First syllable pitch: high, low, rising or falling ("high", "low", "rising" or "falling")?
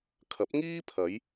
rising